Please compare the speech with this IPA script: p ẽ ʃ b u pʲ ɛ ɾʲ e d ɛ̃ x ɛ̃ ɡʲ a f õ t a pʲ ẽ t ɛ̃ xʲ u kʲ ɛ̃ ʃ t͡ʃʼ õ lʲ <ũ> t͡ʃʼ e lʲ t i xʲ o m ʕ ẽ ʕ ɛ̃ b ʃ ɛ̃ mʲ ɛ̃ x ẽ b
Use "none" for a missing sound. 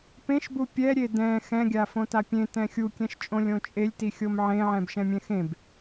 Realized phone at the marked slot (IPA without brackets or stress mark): õ